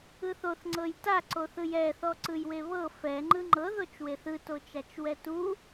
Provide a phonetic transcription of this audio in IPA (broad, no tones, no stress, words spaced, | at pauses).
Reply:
ɯθoθ ŋ͡ǀɤjta ǀoθɯjɛ θɔǀɯjweβɤ fɛ ŋ͡ǃɯŋ͡ǃɤ ðot͡ʃweθɯ tot͡ʃat͡ʃwɛtu